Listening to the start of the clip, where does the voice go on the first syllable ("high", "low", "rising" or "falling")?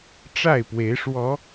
falling